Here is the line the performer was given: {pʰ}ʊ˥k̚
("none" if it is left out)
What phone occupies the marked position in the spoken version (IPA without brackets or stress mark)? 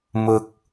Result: m